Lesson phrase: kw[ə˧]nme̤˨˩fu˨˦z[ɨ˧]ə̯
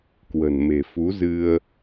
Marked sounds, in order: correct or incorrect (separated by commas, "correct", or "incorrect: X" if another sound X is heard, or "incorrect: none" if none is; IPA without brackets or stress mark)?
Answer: incorrect: ə̤˨˩, correct